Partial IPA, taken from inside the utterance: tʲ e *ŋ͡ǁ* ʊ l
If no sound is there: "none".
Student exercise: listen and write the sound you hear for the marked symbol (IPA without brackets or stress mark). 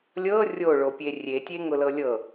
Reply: ŋ